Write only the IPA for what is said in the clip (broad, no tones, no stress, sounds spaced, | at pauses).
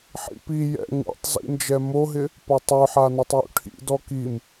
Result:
ħ ḭ p i j ɛ̰ ŋ ṵ tˤ z ḭ n d͡ʒ ɛ m o ɦ ɪ | p ɔ tˤ œ ħ a n ɔ tˤ j ṵ ʈʰ ḭ d ɔ k i m